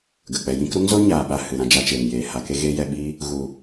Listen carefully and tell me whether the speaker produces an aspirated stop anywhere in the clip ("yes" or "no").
no